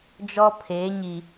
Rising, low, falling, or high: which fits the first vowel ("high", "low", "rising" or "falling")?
high